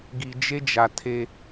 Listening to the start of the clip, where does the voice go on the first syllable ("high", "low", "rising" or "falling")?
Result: low